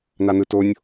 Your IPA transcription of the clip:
nanɯtonʲ

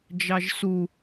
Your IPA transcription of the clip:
d͡ʒɑʒsu

